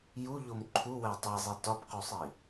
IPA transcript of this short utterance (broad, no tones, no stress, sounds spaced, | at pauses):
j u ʎ o m ǃʰ u w æ tˤ e zˤ i t ɒ p q u sˤ i